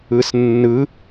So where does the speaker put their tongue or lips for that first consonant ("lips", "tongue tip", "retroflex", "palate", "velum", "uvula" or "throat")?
tongue tip